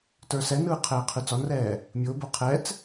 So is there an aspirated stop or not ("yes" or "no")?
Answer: yes